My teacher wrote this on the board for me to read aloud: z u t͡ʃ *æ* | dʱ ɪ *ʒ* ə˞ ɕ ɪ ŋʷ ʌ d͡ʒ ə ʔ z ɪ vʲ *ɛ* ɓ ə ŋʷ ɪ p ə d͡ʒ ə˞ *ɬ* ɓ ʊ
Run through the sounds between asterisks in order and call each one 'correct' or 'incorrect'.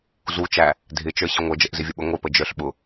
correct, incorrect, incorrect, correct

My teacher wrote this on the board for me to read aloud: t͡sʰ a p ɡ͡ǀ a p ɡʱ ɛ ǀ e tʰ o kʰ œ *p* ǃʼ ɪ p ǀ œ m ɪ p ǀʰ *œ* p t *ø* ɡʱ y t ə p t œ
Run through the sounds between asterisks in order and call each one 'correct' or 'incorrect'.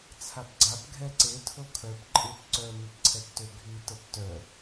correct, incorrect, correct

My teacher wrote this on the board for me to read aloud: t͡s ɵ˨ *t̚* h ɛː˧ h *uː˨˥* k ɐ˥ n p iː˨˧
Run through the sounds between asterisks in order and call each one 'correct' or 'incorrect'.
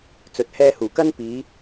correct, incorrect

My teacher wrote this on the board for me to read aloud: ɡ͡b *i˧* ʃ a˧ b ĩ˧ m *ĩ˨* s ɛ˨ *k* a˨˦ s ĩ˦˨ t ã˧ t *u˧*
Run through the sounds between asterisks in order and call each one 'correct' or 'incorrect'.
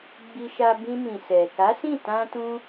correct, correct, correct, incorrect

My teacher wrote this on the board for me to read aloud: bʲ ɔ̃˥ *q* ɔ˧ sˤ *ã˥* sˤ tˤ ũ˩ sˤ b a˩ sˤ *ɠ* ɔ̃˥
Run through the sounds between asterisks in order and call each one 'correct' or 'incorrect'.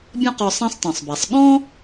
correct, correct, correct

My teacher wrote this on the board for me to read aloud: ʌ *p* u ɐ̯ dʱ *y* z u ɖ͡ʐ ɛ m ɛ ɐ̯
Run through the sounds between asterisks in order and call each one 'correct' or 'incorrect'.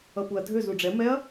correct, incorrect

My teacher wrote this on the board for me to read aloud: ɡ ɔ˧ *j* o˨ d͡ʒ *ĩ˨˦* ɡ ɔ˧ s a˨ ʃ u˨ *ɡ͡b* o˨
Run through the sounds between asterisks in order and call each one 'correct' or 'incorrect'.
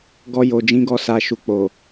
correct, correct, incorrect

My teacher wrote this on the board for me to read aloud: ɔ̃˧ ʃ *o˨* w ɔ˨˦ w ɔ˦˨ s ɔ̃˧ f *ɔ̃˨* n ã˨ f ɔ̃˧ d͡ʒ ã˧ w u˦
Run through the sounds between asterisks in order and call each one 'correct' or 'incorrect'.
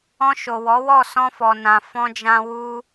correct, incorrect

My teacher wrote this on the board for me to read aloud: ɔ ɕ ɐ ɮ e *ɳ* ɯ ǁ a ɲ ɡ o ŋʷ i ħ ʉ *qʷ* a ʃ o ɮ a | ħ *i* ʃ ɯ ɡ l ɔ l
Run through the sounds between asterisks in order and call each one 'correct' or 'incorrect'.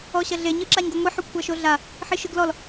incorrect, incorrect, correct

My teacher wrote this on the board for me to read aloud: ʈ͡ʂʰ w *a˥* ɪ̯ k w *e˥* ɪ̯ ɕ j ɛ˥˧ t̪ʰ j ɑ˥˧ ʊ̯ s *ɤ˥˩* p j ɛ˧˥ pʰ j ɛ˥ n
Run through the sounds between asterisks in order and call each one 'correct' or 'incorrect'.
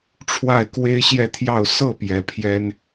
incorrect, correct, correct

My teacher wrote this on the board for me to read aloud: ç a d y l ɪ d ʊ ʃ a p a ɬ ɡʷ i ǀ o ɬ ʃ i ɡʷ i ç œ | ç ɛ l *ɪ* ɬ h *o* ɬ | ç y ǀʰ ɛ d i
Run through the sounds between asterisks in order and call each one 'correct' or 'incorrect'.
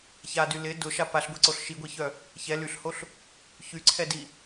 incorrect, correct

